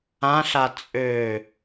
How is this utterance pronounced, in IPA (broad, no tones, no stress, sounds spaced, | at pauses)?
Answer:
ã ɬ a t͡sʼ ø